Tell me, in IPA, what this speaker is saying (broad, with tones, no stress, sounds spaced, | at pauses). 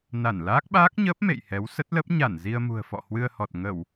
n a˧˩ n l aː˦˥ k̚ ɓ aː˦˥ k̚ ɲ əː˦˥ p̚ m ḛ˧˨ j h ɛ˨˦ w s ə˦˥ t̚ l ə˦˥ p̚ ɲ a˧˩ n z i˧ ə̯ m ṳ˨˩ ə̯ f ɔ̰˧˨ h w ɨ˧ ə̯ h ɔ˨˩ t̚ ŋ ə˧˩˨ w